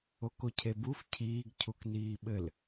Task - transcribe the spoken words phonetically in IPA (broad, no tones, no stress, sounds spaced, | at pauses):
o k o cʰ e b u f cʰ iː ɡ cʰ u k n iː ɓ ɘ l